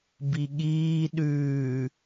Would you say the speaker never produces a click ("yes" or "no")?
yes